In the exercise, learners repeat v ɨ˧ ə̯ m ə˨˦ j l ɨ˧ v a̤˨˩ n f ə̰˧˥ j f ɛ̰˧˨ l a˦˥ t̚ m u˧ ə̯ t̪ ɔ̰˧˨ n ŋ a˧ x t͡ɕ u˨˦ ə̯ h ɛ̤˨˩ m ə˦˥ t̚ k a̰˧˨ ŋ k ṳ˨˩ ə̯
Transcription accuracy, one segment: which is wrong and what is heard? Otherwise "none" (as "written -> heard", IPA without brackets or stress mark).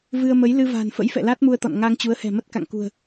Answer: x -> ŋ